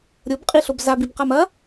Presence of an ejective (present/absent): present